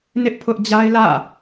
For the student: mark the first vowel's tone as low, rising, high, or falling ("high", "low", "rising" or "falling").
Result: high